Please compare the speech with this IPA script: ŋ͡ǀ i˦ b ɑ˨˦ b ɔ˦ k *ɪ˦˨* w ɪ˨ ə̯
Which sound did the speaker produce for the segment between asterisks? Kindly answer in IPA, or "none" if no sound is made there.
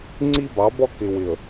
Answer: ɪ˨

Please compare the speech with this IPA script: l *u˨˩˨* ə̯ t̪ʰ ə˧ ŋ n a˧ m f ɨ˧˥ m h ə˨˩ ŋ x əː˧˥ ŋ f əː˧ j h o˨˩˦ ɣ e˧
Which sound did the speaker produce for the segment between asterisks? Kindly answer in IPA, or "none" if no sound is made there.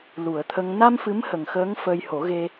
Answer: u˨˩˨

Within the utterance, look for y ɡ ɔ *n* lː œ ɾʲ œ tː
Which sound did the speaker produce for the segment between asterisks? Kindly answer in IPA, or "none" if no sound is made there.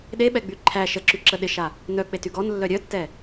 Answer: n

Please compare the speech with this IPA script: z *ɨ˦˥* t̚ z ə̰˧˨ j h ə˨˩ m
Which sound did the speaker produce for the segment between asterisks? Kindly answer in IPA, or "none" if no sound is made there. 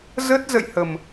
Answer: ə˦˥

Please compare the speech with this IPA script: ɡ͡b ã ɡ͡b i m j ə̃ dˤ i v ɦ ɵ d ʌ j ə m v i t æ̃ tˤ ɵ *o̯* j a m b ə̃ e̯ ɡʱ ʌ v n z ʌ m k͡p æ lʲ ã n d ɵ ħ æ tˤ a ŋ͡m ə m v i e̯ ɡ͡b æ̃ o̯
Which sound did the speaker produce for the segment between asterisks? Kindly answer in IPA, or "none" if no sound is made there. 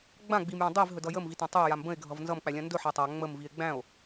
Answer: e̯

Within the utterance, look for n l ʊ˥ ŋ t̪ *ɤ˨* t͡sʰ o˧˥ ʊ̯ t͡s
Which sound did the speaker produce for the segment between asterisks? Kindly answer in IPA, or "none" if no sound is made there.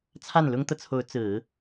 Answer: ɤ˨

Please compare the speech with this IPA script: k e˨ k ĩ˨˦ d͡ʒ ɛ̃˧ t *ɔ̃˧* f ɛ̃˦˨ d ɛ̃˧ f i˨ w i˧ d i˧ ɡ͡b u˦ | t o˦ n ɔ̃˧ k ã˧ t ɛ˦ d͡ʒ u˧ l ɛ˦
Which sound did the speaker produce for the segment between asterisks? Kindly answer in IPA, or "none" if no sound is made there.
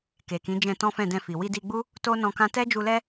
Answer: ɔ̃˦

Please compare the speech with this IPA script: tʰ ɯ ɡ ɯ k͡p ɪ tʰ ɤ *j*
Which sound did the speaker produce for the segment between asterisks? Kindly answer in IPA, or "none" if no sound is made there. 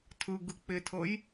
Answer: j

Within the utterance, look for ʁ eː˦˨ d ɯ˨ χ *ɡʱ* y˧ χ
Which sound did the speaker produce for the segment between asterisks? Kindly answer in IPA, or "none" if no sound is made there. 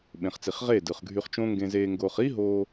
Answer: ɡʱ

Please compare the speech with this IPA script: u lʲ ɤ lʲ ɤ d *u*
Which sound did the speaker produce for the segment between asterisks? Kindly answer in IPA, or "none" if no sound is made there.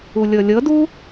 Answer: u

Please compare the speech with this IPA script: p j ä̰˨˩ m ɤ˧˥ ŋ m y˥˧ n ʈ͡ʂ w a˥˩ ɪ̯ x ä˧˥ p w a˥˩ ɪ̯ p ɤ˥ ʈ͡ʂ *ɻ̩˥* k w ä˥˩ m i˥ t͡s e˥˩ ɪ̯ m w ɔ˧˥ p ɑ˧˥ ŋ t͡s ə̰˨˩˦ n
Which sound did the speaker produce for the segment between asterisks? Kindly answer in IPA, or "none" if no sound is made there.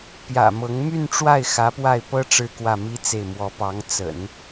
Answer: ɻ̩˥˧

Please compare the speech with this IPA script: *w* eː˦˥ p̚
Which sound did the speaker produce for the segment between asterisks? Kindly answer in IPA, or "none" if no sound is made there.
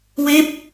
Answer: w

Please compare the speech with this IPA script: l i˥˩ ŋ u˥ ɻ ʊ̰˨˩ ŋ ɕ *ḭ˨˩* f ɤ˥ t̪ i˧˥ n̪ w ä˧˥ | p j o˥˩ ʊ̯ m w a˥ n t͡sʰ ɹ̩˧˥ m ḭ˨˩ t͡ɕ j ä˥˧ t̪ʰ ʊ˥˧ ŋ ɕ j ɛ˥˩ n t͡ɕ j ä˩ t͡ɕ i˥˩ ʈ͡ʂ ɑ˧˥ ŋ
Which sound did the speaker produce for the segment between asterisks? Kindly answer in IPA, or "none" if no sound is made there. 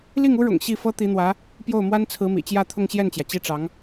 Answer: i˥˩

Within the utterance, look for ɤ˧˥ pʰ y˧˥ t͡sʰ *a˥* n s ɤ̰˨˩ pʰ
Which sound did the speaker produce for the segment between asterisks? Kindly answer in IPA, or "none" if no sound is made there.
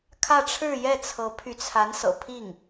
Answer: a˧˥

